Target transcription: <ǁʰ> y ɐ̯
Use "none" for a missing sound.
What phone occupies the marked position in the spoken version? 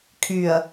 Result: kʰ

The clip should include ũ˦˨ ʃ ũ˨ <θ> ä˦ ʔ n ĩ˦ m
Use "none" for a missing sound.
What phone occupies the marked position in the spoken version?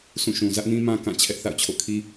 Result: z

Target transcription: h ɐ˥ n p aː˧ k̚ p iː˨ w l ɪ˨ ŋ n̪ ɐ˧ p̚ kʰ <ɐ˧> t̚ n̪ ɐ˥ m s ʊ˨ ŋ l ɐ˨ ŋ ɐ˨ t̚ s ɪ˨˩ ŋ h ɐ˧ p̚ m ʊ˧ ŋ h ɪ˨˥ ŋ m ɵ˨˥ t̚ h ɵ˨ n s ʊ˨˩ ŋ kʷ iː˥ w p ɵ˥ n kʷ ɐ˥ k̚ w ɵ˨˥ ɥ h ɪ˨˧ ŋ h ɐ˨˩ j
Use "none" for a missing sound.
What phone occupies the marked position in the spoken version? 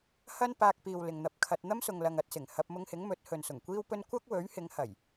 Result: ɐ˧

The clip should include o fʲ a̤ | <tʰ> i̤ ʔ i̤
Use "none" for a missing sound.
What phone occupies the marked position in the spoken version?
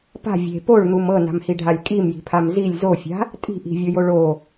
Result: tʼ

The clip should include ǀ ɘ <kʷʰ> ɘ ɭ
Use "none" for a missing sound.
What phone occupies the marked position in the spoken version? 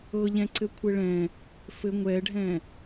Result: kʷʰ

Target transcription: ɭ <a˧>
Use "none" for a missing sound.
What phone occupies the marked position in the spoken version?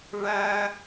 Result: æ˧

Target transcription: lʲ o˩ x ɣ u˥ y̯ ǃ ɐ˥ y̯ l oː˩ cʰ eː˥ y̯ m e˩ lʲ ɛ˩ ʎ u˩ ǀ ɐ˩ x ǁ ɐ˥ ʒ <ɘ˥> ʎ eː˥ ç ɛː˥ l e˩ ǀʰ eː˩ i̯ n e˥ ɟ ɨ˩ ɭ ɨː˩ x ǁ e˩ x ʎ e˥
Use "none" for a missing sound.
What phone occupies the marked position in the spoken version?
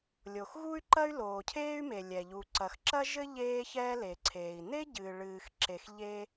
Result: ɘ˥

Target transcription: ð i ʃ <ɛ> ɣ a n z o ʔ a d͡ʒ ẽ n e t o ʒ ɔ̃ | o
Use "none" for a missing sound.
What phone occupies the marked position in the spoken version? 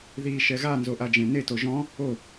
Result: ɛ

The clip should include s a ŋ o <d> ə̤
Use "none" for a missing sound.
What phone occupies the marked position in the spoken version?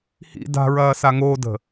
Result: d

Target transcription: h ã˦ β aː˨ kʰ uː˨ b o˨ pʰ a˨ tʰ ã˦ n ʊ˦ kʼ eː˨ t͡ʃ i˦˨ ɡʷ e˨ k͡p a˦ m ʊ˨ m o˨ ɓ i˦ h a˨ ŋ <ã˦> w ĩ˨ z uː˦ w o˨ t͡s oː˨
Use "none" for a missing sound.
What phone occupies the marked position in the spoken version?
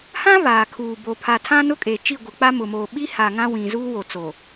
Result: ã˦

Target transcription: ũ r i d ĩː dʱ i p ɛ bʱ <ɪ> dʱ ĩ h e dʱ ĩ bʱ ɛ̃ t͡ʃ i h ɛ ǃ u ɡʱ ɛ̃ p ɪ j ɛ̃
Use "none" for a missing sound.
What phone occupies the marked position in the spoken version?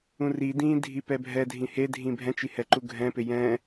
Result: ɛ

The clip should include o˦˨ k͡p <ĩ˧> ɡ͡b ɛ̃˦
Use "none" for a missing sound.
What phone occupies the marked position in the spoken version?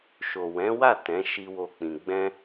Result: ĩ˧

